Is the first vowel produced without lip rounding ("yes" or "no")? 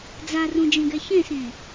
yes